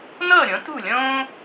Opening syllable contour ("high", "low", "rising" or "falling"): falling